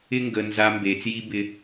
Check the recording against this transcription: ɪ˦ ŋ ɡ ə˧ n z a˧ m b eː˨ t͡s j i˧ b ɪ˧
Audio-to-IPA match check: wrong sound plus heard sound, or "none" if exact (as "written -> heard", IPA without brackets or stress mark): none